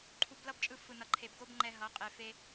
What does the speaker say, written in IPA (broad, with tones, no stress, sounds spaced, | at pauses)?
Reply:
ǃʰ u˧ b l ʌ˦ b t͡ʃʼ ɯ˧ f ɯ˨ n ʌ˨˦ ǃʰ e˨ b ɡ o˦ b ŋ͡ǃ ɛ˧ ɦ ʌ˨˦ qʼ e˧ f e˦